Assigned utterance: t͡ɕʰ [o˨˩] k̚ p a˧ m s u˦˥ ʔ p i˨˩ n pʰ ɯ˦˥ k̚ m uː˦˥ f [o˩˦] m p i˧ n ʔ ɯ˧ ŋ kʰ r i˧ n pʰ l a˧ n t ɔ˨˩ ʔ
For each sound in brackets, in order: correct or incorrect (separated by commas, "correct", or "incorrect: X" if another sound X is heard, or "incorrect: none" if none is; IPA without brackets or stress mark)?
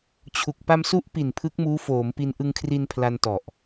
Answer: incorrect: u˨˩, incorrect: oː˩˦